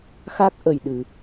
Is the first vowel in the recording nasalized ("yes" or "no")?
no